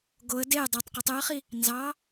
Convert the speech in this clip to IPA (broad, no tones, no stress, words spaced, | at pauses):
ɡoə̯ dej dˤɑtˤqitˤ øə̯χi | nzɑ